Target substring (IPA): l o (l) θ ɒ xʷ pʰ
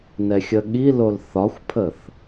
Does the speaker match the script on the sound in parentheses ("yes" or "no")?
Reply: yes